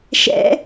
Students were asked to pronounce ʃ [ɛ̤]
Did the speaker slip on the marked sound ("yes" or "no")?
yes